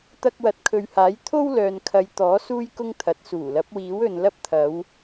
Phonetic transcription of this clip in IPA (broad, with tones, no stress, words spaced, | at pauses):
t̪ɐ˧k̚wɐ˨˥t̚kʰɵ˨ɥhaː˨˥j t̪ʰo˥wlœː˨nkʰɐ˨˧j t̪ɔː˨˥ suː˥jkʊ˥ŋt̪ʰɐ˨˥t̚ suː˨˩lɐ˨˥p̚wiː˨˥wɵ˨n lɐ˧p̚t̪ʰɐ˨˧w